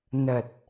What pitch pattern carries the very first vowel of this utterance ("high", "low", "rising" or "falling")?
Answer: low